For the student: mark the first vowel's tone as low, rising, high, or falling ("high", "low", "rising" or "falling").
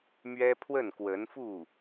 high